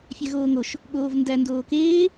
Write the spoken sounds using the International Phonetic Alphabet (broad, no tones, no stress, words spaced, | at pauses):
fʲæɣoːŋoʃ | ɠoːvndæ ndoːkeː